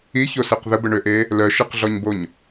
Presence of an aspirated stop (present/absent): absent